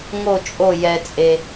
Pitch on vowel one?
falling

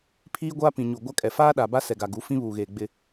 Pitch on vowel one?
high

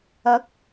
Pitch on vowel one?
rising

